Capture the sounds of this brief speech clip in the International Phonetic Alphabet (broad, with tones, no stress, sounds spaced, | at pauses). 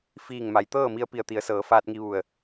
f iː˧˩ ŋ m a˩ j t̪ ɤː˥˨ m i˧ ə̯ p i˧˩ ə̯ t̪ i˩˧ ə̯ s ɤː˩˧ f aː˧ t̚ ŋ i˧ ʋ u˧˩ ə̯